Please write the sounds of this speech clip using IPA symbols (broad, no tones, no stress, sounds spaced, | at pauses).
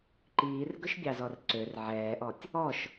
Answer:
ǃ iː r ɡ ɵ ʃ bʲ ɑ z ɔ r ǀ ø r ʕ ɛː ʔ ɔ tʲ | ɔ ʃ